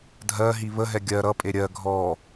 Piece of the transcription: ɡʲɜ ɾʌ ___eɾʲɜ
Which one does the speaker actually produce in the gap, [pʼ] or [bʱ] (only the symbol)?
pʼ